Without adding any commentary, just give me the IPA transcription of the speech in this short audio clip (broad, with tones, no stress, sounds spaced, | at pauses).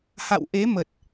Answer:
h a̰˧˨ w ʔ e˨˦ m ə˨˩ t̚